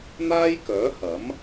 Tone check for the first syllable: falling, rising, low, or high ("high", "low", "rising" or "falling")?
high